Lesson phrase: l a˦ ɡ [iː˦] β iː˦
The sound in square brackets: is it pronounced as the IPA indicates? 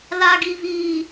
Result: no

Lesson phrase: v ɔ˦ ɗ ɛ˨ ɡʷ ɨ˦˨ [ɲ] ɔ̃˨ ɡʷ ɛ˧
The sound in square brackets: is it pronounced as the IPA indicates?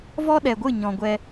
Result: yes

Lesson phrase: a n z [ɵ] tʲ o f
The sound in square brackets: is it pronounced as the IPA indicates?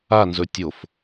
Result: yes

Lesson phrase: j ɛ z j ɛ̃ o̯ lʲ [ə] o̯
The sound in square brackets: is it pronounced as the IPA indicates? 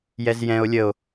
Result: yes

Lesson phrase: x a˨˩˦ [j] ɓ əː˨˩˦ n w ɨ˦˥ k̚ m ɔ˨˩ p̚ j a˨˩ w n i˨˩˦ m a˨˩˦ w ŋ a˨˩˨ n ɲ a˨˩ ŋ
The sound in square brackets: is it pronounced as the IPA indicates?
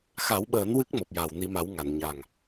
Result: no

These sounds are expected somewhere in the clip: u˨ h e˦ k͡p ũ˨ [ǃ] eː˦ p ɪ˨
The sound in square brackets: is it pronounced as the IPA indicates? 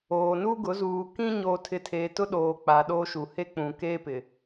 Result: no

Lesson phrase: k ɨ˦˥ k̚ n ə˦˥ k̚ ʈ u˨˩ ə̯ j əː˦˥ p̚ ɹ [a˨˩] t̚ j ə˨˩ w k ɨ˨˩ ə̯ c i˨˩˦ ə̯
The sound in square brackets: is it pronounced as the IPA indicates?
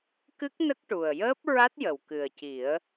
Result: no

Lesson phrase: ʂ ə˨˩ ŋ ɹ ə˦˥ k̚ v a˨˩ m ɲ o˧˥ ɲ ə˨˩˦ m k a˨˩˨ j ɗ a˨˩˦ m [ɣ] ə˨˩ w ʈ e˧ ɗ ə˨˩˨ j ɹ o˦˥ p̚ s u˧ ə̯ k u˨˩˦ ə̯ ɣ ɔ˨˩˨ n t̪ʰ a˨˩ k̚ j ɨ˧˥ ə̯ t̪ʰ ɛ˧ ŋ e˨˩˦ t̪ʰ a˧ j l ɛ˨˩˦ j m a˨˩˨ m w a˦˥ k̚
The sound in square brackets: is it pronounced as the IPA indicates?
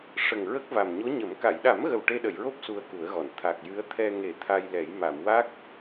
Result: yes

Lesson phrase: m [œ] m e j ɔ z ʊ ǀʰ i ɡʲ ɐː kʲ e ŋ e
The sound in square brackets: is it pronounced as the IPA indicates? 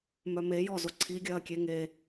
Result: yes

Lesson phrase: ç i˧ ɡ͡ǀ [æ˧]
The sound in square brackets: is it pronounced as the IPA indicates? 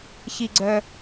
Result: no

